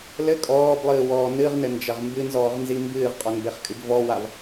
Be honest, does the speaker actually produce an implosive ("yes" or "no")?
no